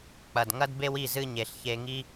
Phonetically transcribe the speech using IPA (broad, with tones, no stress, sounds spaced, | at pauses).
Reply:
k͡p ɐ˨ d ŋ ɐ˦ d b e˦ w i˦˨ z ɨ˧ ɲ e˨ ɬ ç e˧ ŋ i˦